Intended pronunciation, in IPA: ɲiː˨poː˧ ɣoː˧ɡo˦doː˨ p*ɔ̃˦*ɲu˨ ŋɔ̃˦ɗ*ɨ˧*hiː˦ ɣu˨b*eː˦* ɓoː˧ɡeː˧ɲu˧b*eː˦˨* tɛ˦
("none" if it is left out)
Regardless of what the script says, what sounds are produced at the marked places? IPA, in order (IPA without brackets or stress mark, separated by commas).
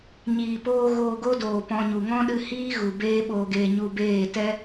ɔ̃˧, ɨ˧, eː˦, eː˦˨